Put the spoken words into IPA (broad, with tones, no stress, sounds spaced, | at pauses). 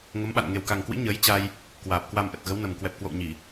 ŋ ə˨˦ m ɓ a̰˧˨ n ŋ e˨˩ w k a˨˩ ŋ k w ḭ˧˥ ɲ əː˨˦ j t͡ɕ a˧ j | k w aː˨˩ p̚ k w a˧ m ʔ ə˨˩ t̚ ɣ ə˨˦ w n ə˨˩ m k w ɛ˨˩ p̚ k w o̰˧˨ w ɲ i˧˩˨